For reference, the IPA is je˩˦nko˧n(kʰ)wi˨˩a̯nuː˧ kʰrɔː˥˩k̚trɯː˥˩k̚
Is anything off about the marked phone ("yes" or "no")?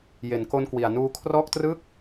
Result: yes